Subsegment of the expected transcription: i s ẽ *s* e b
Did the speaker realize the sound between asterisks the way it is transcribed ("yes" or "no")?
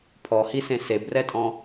yes